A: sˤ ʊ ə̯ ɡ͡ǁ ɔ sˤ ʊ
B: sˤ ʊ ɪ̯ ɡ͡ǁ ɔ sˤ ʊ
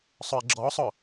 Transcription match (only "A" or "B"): B